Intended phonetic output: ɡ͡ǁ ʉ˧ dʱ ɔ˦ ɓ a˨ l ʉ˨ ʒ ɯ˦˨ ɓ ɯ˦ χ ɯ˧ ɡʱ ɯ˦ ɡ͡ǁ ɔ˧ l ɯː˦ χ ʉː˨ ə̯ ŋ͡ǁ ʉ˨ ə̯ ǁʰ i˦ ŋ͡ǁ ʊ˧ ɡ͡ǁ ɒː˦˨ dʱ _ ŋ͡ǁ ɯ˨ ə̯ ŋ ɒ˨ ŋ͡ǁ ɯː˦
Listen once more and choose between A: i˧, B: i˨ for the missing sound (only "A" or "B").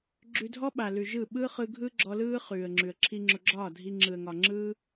A